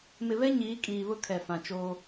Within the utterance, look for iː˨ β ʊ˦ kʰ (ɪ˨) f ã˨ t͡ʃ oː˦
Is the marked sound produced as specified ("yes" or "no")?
no